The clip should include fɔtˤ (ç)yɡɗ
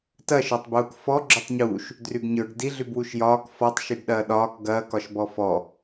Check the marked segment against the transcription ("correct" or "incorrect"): incorrect